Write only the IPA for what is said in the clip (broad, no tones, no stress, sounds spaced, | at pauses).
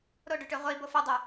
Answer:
ɾ o ɖ ʉ ʈ ʉ ʁʷ i b o f ə dˤ u